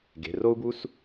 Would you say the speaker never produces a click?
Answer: yes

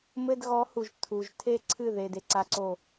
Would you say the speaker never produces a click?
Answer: no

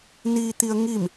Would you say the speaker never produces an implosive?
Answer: yes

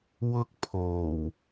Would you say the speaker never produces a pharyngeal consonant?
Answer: yes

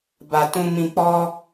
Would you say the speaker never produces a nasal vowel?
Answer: no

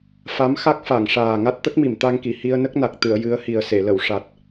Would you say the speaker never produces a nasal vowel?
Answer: yes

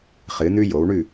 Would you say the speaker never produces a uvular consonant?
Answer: no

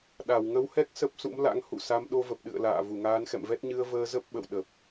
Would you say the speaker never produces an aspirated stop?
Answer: yes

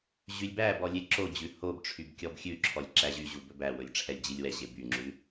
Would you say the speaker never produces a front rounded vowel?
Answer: no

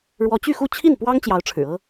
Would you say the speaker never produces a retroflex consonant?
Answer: no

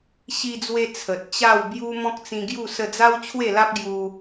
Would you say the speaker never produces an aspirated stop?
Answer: no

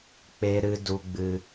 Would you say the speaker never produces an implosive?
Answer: yes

